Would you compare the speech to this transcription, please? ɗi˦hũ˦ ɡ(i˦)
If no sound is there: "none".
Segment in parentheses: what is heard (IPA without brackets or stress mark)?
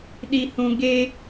e˦